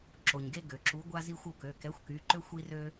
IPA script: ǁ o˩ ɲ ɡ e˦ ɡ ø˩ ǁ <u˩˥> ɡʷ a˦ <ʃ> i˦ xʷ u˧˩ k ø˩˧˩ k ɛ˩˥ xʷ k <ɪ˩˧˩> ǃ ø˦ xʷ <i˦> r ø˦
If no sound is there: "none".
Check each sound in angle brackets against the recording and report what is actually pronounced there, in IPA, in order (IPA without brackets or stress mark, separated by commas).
u˩˥, z, y˩˧˩, i˦